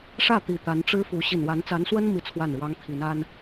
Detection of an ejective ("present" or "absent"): absent